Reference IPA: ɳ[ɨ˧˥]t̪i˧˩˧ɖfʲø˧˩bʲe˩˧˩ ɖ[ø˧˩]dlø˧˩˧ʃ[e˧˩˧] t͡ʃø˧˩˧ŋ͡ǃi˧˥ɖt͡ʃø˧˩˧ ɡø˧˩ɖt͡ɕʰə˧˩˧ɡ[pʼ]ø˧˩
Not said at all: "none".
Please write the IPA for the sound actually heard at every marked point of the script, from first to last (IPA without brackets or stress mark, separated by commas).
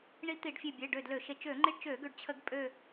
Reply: i˧˥, ø˧˩, e˧˩˧, pʼ